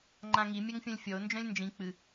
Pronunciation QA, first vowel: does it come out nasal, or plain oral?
nasal